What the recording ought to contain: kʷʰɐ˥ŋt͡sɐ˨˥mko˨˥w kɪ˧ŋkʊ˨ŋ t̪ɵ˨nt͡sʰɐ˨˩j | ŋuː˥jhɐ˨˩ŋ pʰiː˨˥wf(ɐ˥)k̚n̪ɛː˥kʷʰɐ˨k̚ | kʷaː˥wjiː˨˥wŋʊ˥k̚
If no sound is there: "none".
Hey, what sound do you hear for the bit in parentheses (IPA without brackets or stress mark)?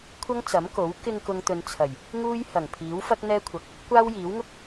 ɐ˥